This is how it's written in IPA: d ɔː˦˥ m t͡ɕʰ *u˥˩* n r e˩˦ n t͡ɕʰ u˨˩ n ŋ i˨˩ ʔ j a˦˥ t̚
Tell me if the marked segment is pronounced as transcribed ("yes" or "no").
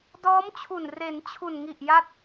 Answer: no